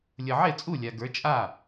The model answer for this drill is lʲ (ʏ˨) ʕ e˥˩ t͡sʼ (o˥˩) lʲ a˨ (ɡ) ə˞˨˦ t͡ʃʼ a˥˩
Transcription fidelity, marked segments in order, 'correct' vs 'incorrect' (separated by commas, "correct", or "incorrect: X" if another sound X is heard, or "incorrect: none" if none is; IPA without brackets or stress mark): incorrect: ə˨, incorrect: u˥˩, correct